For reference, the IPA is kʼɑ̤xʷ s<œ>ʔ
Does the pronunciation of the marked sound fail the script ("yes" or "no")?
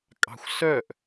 no